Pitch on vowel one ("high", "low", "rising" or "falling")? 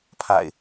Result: low